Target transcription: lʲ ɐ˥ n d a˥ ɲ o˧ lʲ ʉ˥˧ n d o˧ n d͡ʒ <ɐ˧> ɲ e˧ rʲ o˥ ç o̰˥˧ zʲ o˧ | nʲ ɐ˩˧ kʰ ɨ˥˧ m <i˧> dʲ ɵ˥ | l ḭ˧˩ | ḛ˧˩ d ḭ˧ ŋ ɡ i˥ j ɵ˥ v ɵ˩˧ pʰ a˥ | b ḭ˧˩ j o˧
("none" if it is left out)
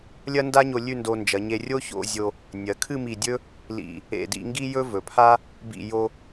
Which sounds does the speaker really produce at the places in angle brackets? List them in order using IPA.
ɐ˩˧, i˧˩

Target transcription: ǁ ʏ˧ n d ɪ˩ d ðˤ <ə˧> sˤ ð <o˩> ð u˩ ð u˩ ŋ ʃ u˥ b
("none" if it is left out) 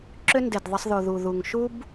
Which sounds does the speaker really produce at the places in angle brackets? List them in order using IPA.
ə˧, o˩

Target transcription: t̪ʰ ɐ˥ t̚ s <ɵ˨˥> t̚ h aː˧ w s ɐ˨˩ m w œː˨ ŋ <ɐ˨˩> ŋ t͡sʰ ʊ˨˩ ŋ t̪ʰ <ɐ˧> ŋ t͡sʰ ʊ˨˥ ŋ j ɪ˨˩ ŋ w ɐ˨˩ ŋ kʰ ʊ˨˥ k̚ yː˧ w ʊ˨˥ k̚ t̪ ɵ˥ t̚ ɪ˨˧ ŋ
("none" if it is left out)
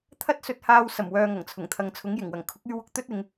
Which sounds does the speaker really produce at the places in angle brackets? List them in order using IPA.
ɵ˧, ɐ˨˩, ɐ˨

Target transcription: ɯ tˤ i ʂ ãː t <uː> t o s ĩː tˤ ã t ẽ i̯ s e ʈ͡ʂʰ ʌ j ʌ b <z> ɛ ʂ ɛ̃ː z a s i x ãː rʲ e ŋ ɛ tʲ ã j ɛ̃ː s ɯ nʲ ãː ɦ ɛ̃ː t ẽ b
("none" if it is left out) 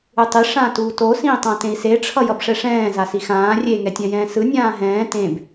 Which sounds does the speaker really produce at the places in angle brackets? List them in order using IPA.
uː, ʂ

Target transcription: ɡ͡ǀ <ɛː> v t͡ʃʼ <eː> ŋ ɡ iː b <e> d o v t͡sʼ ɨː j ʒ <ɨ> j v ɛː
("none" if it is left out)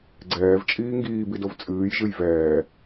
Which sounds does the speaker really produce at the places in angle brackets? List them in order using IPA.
ɛː, iː, i, ɨ

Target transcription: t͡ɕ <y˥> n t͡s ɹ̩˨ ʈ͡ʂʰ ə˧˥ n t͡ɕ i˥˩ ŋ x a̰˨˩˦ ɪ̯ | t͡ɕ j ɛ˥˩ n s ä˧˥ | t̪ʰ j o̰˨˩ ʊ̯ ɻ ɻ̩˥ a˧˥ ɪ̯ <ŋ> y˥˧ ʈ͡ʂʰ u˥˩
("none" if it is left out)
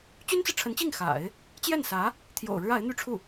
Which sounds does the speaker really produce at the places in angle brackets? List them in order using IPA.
y˥, n̪

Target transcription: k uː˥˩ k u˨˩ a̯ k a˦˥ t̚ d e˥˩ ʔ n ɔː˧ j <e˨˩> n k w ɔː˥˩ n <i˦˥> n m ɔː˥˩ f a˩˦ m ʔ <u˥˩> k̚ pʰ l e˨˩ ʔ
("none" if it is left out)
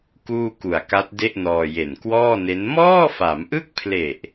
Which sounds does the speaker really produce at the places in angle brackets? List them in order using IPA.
e˨˩, e˦˥, ɯ˥˩

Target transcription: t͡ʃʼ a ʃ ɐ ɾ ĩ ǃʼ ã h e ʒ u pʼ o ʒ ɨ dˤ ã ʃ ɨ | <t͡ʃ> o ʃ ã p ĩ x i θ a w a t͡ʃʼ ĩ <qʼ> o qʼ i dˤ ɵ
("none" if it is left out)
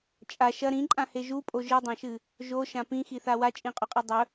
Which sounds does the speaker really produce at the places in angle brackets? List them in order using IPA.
ʒ, qʼ

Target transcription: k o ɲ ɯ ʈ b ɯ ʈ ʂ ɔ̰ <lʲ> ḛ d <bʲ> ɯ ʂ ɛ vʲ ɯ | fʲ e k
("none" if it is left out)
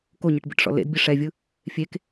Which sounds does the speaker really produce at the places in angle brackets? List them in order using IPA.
l, bʲ

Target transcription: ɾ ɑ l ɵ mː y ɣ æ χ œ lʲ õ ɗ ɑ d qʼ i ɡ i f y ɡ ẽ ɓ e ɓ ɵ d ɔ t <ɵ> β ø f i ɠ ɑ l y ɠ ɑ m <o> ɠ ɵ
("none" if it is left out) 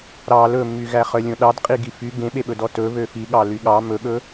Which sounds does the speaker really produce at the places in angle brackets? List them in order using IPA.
ɵ, ɵ

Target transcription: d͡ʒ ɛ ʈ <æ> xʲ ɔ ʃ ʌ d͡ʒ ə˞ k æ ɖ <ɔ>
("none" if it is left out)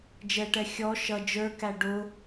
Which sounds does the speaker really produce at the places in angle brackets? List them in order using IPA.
ɛ, ʊ

